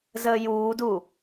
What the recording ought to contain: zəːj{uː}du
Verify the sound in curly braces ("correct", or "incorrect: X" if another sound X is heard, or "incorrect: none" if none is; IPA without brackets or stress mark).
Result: correct